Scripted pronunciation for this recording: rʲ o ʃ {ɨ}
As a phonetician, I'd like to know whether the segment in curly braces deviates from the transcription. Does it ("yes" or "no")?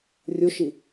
yes